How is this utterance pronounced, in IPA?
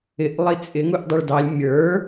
ɪ ʔ lˠ i t͡sʼ ɪ ŋ u ʔ dˤ i ɭ d ɑ lʲ mʲ ə˞

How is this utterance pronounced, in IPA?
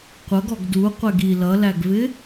qʷ ʌ ɡ ɔ ɡ d u qʷ ɛ ɡ i l ʌ l æ ɡ v ɪ

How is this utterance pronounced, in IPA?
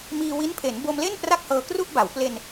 m iː˧ w i˦˥ n pʰ e˩˦ n b o˧ m l e˥˩ n p r a˥˩ k̚ h ɤː˧ k r u˥˩ ʔ b a˩˦ w p l e˧ n

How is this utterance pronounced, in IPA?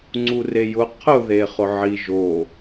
ŋ͡ǀ u r e j ʊ qʰ ʊ ð e χ ʊ ʕ i ʒ o

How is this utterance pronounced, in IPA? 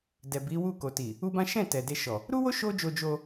d ɛ˨ b i˨˦ w u˦˨ k o˨ t i˨ | u˦ b ã˦ ʃ ɛ̃˦˨ t ɛ˨ d e˧ ʃ ɔ˨ | ɾ u˦ w o˦ ʃ o˦ d͡ʒ o˧ d͡ʒ o˧

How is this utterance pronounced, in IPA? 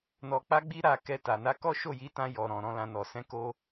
n ɔ˧ k͡p a˦ ɡ͡b i˦ ɾ a˧ k ɛ˧ t a˨ n a˧ k ɔ˦ ʃ o˦˨ j i˨˦ t ã˧ j ɔ˨ ɾ ɔ̃˨ ɾ ɔ̃˨˦ l ã˧ n ɔ˨ s ɛ̃˧ k o˧

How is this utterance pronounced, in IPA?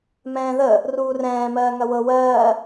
m ɛ̃ː ð ə | r uː r ɛ̃ː m ɜː ŋ ɐ w ɤ w ɜː

